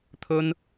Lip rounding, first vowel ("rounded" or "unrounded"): rounded